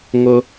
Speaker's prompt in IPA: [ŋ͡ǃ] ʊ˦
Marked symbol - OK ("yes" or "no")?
no